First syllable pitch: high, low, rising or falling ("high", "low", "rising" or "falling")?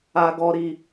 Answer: high